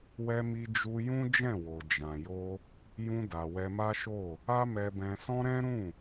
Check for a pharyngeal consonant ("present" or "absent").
absent